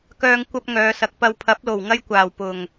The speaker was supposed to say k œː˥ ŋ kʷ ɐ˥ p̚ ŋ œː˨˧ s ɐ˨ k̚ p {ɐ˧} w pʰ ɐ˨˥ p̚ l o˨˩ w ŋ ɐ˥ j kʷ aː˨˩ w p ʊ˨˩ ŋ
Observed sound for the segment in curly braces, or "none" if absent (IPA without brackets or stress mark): ɐ˧